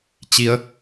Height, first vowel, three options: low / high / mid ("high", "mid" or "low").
high